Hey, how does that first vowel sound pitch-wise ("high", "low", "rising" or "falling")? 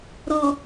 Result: low